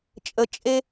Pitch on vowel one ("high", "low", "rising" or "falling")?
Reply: rising